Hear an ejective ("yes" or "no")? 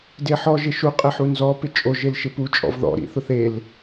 yes